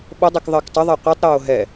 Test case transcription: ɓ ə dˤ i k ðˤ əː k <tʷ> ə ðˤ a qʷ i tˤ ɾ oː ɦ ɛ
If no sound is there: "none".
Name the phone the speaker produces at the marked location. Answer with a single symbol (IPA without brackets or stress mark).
tˤ